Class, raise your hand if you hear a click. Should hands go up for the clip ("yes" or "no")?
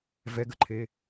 yes